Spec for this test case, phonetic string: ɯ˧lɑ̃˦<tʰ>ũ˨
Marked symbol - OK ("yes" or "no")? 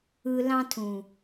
yes